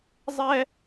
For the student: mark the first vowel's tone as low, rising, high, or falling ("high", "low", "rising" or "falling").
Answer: high